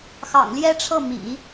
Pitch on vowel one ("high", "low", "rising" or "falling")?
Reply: low